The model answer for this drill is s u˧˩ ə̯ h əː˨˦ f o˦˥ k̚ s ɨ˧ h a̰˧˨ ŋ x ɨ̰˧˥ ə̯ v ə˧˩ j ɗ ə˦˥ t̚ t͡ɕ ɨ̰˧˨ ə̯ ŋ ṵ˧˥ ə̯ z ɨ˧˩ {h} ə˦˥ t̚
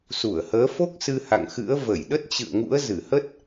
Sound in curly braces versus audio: correct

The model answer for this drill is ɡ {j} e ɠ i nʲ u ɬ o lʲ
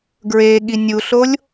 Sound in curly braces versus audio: incorrect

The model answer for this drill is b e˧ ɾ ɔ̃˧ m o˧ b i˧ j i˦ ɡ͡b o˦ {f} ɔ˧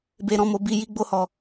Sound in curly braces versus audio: incorrect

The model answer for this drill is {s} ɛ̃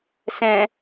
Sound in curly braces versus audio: correct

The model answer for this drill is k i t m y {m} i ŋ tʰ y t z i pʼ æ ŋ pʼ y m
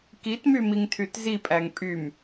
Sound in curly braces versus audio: correct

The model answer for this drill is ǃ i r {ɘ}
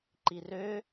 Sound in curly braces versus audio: incorrect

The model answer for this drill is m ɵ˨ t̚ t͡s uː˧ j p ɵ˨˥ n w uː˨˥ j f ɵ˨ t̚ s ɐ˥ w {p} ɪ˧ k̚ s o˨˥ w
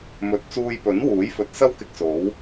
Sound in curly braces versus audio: incorrect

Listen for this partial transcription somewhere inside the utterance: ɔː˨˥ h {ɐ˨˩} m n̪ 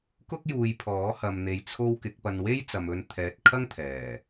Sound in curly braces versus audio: incorrect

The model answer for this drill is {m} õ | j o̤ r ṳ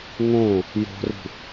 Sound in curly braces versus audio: incorrect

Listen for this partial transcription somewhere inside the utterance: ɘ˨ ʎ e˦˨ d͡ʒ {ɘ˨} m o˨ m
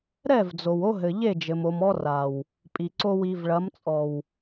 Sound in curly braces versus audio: correct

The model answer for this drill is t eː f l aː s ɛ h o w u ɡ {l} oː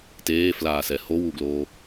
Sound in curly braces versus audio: correct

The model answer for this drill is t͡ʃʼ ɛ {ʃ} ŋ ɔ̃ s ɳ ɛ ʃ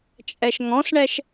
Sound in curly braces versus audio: correct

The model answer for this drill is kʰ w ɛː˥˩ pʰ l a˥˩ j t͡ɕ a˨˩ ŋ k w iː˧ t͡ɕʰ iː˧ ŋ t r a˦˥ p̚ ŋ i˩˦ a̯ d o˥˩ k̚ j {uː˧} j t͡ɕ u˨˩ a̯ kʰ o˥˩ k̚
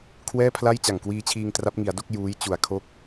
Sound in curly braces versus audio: incorrect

